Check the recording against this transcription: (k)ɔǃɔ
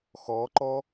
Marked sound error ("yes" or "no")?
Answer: yes